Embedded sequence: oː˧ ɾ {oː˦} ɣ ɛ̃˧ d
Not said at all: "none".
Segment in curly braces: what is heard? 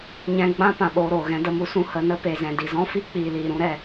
oː˨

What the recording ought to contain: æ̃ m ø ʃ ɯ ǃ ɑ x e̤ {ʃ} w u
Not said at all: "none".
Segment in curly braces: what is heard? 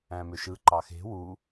none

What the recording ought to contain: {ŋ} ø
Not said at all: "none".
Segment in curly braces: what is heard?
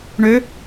ɳ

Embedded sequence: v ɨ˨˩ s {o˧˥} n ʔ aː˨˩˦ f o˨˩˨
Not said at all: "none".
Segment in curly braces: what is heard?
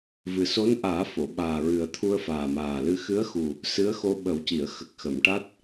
o˧˥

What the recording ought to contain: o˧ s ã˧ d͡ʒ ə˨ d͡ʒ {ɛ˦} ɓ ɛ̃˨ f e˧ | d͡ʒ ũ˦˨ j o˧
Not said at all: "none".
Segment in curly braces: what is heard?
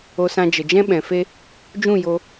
ɛ̃˦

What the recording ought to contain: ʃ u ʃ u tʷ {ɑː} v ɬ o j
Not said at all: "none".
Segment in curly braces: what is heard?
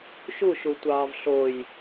ɑː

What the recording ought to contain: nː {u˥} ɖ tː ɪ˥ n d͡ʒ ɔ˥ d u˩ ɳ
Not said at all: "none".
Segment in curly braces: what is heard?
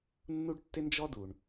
u˥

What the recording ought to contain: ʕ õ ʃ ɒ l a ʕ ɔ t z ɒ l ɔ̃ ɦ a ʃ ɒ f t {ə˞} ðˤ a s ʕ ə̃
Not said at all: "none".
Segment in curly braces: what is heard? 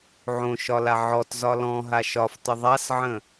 ə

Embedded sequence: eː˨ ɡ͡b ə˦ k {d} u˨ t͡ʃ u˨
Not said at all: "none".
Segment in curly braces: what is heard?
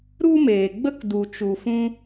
d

